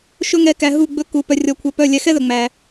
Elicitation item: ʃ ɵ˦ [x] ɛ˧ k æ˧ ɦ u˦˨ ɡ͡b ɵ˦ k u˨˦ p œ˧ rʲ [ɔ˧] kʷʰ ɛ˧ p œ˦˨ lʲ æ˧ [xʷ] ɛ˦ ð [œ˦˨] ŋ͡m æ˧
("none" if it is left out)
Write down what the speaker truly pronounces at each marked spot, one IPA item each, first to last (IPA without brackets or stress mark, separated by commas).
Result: ŋ, ɔ˧, x, œ˨